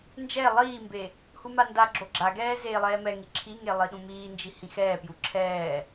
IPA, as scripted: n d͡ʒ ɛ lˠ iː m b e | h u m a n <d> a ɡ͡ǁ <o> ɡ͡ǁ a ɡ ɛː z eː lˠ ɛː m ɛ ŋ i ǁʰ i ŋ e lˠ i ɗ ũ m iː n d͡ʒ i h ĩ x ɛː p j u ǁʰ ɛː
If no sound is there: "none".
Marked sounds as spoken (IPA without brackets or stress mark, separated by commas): d, o